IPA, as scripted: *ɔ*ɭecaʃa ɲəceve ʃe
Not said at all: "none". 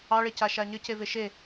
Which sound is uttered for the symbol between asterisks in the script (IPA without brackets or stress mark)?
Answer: ɑ